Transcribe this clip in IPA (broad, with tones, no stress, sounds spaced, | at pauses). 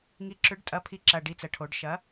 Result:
ŋ i˨˥ ǁ ʏ˨˥ ɖ tʼ ɐ˨˥ pʰ i˨˥ ǁ ɐ˨˩ ɖ i˨˩ t͡s ə˩˧ ʈʰ o˩˧ ɖ ʃ ɐ˨˥